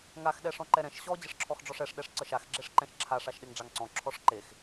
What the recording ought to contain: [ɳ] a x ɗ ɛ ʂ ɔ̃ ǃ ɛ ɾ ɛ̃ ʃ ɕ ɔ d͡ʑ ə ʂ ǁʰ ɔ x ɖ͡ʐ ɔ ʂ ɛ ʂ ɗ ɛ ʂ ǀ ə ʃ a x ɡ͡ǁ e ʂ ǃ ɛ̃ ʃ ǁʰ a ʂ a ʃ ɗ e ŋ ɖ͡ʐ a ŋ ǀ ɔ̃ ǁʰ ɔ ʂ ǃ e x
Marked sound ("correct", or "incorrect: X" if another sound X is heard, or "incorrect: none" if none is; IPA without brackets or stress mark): incorrect: ŋ